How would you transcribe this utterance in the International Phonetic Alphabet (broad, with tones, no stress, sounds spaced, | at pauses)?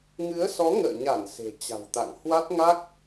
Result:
ŋ ɨ˨˦ ə̯ s ɔ˨˦ ŋ ə̰ː˧˨ ɲ a˧˩ n s e̤˨˩ t͡ɕ a̤˨˩ w t̪ a̰˧˨ ŋ h w a˦˥ t̚ ŋ a˦˥ k̚